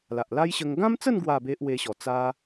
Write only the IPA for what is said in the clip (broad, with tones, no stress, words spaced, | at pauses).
la˨ʔla˦jɕə˧ŋ ɡã˦mt͡sə˥˧n ɡwa˥˧ be˦ʔwe˧ɕɔ˨˩ t͡sa˦